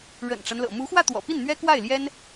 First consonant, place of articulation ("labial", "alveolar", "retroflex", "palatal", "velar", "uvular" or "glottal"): retroflex